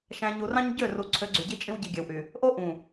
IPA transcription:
ʃ æ̃˨ ɲ u˨ r ɑ̃˦ ɲ ɟ ø˦˨ r u˨ ǀʰ ø˨˦ ɡ͡ǀ y˨ ɟ i˦ t͡ʃʼ ĩ˦ w ɟ i˨ ɡʲ æ˨ w ʔ y˨ | ʔ o˦ ʔ ũ˨

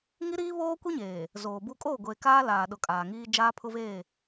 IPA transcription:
ŋ i˦ ɾ iː˦ β oː˦ kʷ i˦ ɲ eː˨ | z oː˨ b u˦ kʼ oː˦˨ ɡʷ eː˨ k aː˦ l aː˨ ɗ ʊ˨ kʼ aː˨ ŋ iː˦ d͡ʒ aː˦ pʰ ʊ˦ v eː˦˨

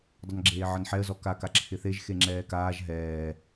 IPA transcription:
dˤ ʌ n ɡ͡ǁ eː ʕ ʌ n ħ ɛ ə̯ z ɔ k a k a ǁʰ ɪ θ e ʒ x e ŋ͡ǁ ɛː k aː ʒ ɦ ɛː

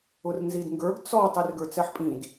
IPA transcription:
ʊ r n z i d ŋ ɡ ə˞ ɡ t͡s ɔ tˤ i r ɡ ə˞ t͡s ɛ ħ pʼ ĩ d

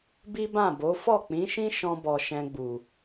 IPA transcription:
b i˦ b ã˦˨ b o˨˦ f ɔ˦˨ k͡p ĩ˨˦ ʃ ĩ˦ ʃ ɔ̃˧ b ɔ˨ ʃ ɛ̃˧ ɡ͡b u˨

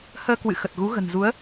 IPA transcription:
h əː˧ k w ɨ̰˧˨ x ə˨˩ t̚ ɣ u˨˦ ɣ ə̤˨˩ n z u˨˦ ə̯

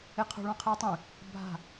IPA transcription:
e qʰ o̤ ɭ ɔ̃ qʰ e ʊ̯ tˤ ẽ | bʱ a̤

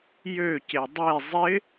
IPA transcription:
j ø c e dˤ e zˤ ɪ

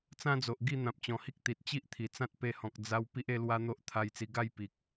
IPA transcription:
t͡s ã˦ d͡z o˨ ʔ ɡ i˥˧ n̪ ã˨ p̚ t͡ɕ ɔ̃˨˩ h i˦ k̚ t̪ i˨ t̚ t͡ɕ i˦ ʔ t̪ʰ i˨˩ t͡s ã˦ t̚ p e˧ h ɔ̃˨ k̚ d͡z a˦ w p i˦ ʔ e˦ l w a˦ n̪ o˦ ʔ t̪ʰ a˧ j t͡s i˧ ɡ a˥˧ j p i˨ k̚

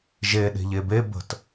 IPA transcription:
ʒ e ɗ e̤ ʎ e b e b ə̤ t

